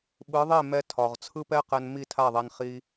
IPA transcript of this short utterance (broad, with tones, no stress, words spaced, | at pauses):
ɓɯ˨˦ðˤe˦˨ mɛ˦tʰɒ˨ʁ t͡sʰɯ˦pɛ˦qɛ˧n mi˦˨tʰa˦˨ðˤɛ˧n χi˦